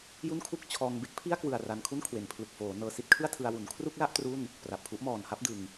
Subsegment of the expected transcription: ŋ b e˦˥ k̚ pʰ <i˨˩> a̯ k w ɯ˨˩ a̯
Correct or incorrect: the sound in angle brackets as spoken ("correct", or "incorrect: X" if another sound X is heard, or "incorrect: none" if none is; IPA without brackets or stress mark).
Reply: incorrect: i˥˩